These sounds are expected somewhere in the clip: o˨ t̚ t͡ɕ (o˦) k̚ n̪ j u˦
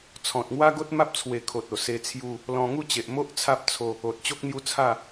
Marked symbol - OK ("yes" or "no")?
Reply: yes